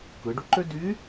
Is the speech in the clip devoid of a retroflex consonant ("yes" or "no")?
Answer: no